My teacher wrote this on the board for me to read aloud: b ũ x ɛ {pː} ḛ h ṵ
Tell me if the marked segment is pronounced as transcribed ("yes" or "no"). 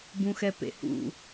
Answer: no